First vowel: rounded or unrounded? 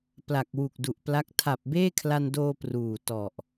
unrounded